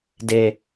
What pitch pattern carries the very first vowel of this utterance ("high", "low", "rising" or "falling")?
low